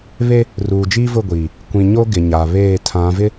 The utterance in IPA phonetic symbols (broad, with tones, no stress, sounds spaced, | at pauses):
β e˦ | r uː˨ d͡ʒ iː˦ v ʊ˦˨ ɡʷ iː˨ | kʷ ĩ˨ ɲ o˦ ɡ ɪ˨ ɲ a˨ β eː˦˨ tʰ ã˨˦ v ɪ˦